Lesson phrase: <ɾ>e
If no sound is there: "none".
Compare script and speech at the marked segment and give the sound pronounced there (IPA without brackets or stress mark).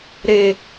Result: ɾ